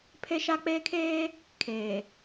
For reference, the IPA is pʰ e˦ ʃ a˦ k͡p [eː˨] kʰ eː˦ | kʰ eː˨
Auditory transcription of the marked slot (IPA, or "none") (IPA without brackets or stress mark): eː˦